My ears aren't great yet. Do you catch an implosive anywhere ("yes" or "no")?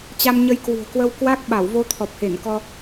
yes